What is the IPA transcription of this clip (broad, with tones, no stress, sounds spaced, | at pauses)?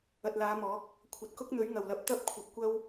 ɐ˨ t̚ l aː˨˧ m ɔː˨˥ k̚ | kʷʰ ɐ˨ t̚ k ʊ˥ k̚ n̪ ɵ˨˥ ɥ ŋ ɐ˨˩ w l ɐ˨˥ p̚ t̪ ɐ˥ p̚ kʷʰ ɐ˨ p̚ kʷ ɐ˥ w